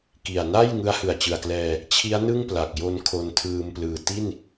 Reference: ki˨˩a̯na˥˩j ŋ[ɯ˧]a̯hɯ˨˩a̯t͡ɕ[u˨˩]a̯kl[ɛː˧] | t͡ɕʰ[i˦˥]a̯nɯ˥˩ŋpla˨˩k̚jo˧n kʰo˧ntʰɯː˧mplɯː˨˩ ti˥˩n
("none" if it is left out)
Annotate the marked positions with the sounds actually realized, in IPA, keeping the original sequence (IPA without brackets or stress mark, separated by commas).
ɯ˦˥, ɯ˨˩, ɛː˧, i˦˥